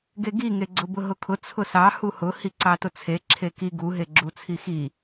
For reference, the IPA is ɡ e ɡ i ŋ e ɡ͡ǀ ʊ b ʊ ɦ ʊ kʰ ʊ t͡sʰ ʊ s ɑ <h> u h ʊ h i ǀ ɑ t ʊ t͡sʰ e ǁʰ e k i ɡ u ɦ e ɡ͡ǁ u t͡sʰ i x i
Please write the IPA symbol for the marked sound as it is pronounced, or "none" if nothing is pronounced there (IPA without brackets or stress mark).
h